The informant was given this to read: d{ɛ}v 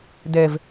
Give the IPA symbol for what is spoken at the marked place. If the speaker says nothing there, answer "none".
ɛ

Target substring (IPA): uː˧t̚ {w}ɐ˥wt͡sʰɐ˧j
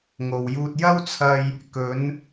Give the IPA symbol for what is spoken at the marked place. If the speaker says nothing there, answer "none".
j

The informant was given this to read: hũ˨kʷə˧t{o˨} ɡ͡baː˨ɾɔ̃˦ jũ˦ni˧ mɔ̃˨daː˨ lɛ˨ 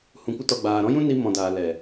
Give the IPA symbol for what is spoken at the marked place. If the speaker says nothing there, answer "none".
ɔ˨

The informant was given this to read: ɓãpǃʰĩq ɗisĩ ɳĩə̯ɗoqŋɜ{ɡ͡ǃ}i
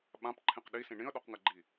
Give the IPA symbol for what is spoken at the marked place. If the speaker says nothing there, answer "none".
ɡ͡ǃ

